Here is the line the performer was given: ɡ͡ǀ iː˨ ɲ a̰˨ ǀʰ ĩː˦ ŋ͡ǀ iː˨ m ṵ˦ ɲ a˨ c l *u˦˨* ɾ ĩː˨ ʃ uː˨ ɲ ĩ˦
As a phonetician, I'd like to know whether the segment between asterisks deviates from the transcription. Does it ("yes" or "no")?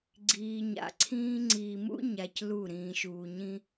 no